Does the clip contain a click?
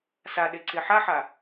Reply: yes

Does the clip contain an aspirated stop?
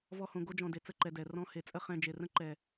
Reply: no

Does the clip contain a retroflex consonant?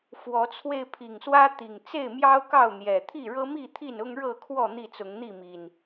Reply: yes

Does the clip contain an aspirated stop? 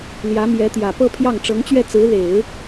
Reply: yes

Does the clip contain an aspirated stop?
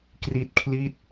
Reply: yes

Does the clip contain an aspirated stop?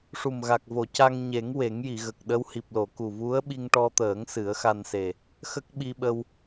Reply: no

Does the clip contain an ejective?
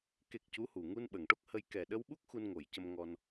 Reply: no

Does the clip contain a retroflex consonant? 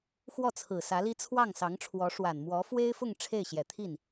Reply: yes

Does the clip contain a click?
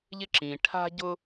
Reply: yes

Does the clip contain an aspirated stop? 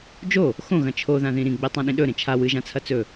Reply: yes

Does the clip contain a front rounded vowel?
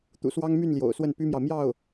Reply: yes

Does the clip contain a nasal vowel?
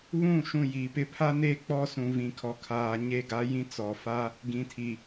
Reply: yes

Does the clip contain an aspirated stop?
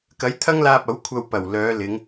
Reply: yes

